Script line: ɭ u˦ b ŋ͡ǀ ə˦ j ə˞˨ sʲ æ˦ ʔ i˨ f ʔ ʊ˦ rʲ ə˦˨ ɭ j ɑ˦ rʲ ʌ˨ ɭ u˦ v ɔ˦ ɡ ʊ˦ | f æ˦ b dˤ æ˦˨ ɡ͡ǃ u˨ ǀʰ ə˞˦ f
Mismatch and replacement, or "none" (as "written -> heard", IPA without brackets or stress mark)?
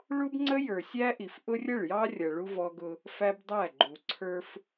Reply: none